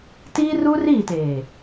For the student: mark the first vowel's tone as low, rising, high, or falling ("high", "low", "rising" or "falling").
high